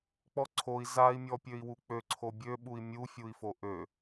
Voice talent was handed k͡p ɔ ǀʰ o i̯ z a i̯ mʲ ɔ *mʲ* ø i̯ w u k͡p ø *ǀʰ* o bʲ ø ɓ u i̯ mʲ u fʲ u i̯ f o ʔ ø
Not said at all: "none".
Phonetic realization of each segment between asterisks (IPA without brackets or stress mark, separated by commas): pʲ, ǀʰ